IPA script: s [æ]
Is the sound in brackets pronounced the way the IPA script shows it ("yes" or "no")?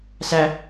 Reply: yes